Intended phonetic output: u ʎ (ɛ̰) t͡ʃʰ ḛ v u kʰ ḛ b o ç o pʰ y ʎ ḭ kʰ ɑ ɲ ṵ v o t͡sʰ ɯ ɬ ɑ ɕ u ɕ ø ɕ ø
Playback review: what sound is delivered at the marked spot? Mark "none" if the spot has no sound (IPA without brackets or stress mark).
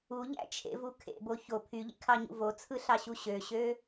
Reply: æ̰